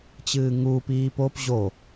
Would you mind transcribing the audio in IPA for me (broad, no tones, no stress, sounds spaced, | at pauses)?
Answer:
t͡ɕ ɨː ŋ uː p iː p o p ʑ o